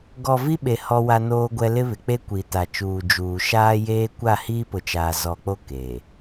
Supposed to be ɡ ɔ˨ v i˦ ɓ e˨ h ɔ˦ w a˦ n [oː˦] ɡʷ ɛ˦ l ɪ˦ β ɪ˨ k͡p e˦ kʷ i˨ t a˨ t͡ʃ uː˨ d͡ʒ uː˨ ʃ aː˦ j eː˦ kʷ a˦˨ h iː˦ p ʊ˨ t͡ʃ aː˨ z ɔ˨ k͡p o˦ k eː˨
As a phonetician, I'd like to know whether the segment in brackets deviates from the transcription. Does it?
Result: no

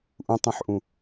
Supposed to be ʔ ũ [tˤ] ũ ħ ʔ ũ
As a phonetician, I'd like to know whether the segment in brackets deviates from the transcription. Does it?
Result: no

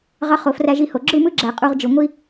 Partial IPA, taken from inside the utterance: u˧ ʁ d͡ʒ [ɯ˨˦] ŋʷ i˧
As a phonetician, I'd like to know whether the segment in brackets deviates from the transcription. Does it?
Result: yes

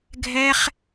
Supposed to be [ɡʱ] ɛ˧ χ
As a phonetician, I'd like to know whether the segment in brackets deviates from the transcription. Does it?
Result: no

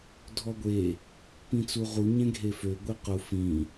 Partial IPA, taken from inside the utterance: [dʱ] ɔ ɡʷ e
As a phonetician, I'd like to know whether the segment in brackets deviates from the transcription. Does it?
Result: no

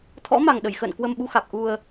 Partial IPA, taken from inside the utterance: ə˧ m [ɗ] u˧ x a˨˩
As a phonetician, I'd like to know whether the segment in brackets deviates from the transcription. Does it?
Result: yes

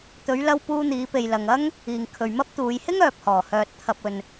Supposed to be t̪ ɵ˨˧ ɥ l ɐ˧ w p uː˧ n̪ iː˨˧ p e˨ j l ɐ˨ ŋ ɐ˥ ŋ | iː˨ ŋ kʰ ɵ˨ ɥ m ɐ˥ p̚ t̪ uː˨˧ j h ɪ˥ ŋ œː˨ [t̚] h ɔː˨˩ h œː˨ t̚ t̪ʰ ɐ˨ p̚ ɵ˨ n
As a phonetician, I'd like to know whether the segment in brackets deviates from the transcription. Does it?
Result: yes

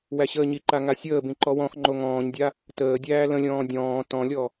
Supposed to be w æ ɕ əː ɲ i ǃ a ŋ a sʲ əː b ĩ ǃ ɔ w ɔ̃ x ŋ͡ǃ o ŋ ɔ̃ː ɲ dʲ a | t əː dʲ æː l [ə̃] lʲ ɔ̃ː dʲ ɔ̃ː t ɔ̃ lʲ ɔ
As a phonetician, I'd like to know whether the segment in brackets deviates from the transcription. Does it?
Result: no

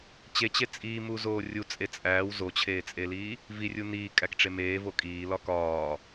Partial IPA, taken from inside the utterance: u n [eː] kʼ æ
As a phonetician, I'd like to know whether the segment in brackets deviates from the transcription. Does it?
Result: yes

